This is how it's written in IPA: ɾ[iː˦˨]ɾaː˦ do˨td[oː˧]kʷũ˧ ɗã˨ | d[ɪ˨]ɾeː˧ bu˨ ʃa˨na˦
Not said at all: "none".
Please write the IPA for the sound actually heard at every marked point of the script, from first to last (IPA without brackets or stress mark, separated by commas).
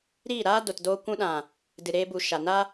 iː˦˨, oː˧, ɨ˨